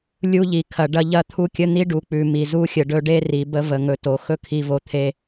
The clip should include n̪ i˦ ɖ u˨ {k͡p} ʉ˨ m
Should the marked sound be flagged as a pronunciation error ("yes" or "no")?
no